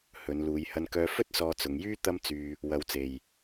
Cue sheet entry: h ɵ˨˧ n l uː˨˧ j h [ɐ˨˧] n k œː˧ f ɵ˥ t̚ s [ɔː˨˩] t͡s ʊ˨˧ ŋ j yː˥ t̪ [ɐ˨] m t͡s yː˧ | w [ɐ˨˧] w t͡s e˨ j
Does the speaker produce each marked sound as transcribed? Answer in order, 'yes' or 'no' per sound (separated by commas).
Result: no, no, no, yes